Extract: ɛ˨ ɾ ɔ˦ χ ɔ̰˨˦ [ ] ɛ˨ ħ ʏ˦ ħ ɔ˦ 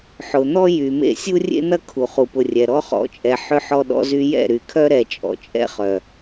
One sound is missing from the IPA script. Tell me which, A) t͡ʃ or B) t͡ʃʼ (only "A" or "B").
B